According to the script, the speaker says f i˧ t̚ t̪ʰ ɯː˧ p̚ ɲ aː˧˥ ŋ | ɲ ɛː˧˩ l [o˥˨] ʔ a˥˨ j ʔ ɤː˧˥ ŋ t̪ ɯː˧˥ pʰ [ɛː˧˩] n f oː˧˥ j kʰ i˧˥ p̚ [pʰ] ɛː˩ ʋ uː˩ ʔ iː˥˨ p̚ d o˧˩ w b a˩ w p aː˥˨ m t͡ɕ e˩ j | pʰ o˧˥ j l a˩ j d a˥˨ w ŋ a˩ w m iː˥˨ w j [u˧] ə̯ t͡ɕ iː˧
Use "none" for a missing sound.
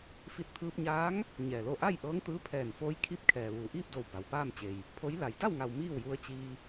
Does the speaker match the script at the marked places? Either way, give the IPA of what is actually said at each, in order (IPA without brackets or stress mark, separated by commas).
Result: o˥˨, ɛː˧˩, kʰ, u˧